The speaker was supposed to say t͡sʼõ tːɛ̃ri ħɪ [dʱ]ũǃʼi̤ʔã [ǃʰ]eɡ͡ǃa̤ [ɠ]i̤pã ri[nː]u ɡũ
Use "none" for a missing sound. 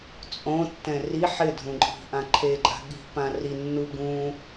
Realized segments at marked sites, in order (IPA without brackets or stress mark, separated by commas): dʱ, ǃʰ, ɠ, nː